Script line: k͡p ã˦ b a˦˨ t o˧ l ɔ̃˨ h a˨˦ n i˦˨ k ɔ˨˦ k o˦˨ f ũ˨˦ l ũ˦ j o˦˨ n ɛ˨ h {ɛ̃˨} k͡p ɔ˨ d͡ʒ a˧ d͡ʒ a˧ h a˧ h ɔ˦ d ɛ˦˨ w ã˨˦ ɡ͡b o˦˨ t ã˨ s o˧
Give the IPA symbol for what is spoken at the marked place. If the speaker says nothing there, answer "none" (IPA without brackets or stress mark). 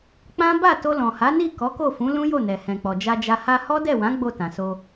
ɛ̃˨